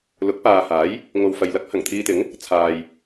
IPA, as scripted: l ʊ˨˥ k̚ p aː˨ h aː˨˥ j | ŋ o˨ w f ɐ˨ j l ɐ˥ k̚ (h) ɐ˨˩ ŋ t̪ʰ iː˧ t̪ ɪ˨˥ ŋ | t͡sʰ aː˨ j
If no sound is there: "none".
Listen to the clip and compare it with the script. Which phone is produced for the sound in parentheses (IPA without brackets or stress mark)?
h